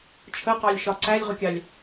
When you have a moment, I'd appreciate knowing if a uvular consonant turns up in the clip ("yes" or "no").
yes